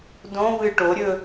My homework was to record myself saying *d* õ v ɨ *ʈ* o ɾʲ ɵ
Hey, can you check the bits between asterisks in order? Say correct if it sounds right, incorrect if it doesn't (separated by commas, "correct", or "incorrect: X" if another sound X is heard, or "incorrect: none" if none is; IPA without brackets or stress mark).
correct, correct